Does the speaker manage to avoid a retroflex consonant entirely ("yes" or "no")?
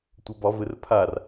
yes